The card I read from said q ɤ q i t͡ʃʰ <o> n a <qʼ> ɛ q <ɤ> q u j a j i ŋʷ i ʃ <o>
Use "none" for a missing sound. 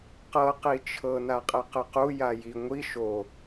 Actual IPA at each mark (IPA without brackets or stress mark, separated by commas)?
ɤ, qʼ, ɯ, o